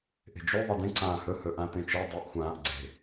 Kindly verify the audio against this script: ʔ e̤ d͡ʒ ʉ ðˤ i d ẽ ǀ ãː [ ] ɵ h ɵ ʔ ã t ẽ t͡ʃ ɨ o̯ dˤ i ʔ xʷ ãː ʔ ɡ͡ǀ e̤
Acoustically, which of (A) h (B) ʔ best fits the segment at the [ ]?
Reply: A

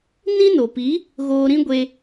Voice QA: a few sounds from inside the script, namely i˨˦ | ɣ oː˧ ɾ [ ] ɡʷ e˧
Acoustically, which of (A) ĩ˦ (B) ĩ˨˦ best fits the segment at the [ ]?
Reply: A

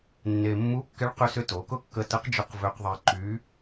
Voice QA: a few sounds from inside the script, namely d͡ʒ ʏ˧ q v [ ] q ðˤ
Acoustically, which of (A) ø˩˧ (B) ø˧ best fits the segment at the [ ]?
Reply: B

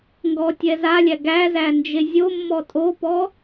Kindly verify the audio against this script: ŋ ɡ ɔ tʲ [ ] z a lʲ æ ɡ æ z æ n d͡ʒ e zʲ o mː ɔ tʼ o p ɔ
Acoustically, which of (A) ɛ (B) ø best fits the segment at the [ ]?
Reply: A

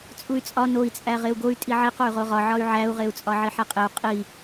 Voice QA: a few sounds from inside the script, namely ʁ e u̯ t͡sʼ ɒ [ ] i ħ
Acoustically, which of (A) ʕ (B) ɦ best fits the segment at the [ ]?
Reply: A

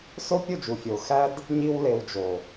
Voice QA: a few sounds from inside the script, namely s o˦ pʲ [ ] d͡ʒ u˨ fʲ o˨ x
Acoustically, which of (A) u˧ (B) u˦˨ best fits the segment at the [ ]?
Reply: B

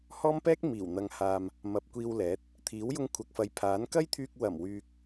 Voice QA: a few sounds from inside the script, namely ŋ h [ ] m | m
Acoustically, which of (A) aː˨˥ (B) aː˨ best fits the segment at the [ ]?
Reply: B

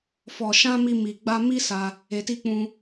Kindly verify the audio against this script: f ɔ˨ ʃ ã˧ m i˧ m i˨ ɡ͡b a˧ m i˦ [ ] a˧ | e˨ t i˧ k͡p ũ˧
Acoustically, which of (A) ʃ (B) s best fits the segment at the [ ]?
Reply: B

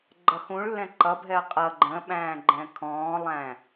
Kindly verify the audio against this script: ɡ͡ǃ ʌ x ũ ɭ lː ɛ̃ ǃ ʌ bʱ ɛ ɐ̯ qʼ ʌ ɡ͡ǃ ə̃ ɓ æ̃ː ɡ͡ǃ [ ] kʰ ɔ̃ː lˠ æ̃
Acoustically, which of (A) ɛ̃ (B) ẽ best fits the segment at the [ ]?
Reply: A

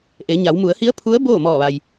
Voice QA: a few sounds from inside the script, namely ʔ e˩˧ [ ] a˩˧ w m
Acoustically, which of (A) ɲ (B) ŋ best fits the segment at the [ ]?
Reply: A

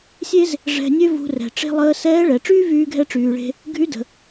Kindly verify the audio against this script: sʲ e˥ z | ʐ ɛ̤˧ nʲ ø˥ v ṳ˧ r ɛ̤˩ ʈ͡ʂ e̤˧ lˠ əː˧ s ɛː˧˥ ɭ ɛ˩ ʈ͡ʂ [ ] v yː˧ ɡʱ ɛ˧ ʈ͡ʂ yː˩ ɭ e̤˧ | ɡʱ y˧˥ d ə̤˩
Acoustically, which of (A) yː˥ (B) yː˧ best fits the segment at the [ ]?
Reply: A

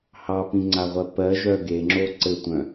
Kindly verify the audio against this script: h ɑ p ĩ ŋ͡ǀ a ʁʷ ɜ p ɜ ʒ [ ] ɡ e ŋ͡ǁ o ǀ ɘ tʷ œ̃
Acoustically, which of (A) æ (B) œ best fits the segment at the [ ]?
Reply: B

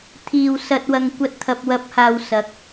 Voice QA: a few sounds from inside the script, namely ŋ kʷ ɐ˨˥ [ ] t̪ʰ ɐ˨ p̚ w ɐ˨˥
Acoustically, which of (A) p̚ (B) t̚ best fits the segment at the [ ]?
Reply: B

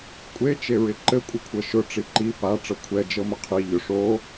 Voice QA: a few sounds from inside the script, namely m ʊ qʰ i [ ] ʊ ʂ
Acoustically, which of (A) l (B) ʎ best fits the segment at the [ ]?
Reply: B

